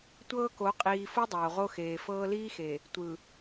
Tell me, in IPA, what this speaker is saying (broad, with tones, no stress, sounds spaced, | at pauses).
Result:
tʷ ɤː˦ k o˨˦ qʼ iː˨ f o˦ dˤ oː˨ ʁ o˦ x eː˨ f ɤː˦ l iː˦ x e˨ | tʷ ɯ˨